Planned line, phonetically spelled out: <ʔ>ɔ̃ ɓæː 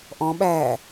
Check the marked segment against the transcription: correct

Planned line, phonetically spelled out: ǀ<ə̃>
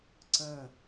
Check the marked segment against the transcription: correct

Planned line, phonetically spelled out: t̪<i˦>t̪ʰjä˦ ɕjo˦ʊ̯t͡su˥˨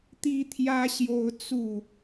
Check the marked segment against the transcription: correct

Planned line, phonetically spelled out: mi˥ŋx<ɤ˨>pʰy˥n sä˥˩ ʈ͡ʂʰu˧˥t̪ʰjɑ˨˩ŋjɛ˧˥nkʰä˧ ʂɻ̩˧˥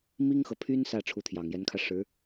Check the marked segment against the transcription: correct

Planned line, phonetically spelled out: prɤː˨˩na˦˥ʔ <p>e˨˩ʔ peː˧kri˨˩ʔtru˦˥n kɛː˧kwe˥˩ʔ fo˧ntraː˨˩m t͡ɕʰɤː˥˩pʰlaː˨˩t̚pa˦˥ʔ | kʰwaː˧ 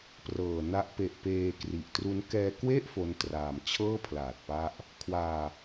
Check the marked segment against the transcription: correct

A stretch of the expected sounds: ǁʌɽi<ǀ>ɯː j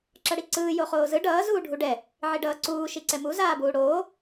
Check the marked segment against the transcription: correct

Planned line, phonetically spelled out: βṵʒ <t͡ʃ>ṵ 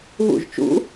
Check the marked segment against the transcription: correct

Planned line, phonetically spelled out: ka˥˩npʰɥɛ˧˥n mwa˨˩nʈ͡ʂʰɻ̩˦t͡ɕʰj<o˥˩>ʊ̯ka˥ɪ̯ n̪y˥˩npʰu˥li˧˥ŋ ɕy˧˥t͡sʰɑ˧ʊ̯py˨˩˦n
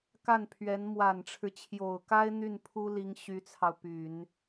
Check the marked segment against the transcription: incorrect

